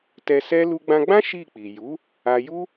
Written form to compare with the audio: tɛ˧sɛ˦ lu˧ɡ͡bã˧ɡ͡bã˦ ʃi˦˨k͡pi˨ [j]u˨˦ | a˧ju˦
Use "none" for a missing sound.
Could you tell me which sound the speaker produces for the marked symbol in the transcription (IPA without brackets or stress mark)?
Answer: j